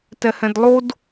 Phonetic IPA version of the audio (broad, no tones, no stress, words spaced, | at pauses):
tɛhɛ̃dlˠod